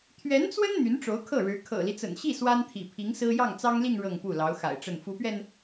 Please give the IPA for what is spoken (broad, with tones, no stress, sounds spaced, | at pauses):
t̪ʰ ɥ ɛ˧˥ n t͡s w ə˥ n n̪ y˧˥ n ʈ͡ʂ o˧˥ ʊ̯ kʰ ɤ˥˩ ɻ ɻ̩˧˥ kʰ ɤ̰˨˩ l i˦ t͡s ə̰˨˩ n ɕ i˥˩ s w a˥ n t̪ʰ ḭ˨˩ pʰ i˧˥ ŋ s ɹ̩˥ j ɑ˥˩ ŋ t͡s ɑ˥ ŋ l i˥˧ ŋ ɻ ɤ˥˧ ŋ p u˥˩ l ɑ˧˥ ʊ̯ x a̰˨˩ ɪ̯ ʈ͡ʂ ə˥˩ n f u˧˥ p ɥ ɛ˧ n